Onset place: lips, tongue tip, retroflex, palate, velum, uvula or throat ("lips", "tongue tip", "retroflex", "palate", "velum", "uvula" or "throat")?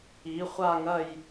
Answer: uvula